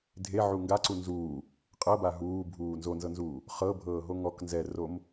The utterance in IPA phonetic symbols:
dʱ e ʕ u ŋ ɡ a ǀ u n z uː | qʼ ɤ b a ɦ uː bʱ uː n z o n z ɤ n z uː | χ ɤ bʱ ɤː ɦ o ŋ ɔ k n z ɛ r o m

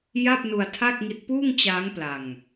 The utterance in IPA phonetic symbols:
j a˥˩ p̚ n u˧ a̯ tʰ a˥˩ k̚ ŋ i˦˥ t̚ p uː˥˩ ŋ t͡ɕ aː˦˥ ŋ p l a˧ ŋ

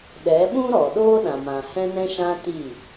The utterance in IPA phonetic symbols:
ɗ ɛ˨˦ ɓ ũ˦ ɾ ɔ˨ ɗ oː˦ ɗ ã˨ m ã˨ h ɛ̃˧ n ɛ̃˧ ʃ ã˧ t i˦˨

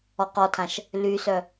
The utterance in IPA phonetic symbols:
ɔ q ɔ tʰ ã ʃ | l y s œ

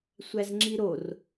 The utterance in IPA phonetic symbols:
sʷ æ z ŋ͡ǁ i ɾ o r

